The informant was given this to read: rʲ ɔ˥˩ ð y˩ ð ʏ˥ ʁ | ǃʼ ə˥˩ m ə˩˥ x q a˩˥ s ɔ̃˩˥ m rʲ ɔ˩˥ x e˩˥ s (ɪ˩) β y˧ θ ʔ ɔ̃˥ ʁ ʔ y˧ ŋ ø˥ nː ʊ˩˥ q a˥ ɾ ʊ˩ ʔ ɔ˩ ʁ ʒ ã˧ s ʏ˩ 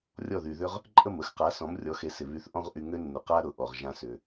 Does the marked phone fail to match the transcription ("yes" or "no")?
no